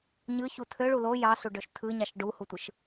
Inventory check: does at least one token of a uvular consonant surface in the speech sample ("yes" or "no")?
no